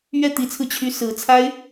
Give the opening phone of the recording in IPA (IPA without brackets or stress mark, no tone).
ɥ